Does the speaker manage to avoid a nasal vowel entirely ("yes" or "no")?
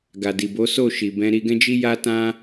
no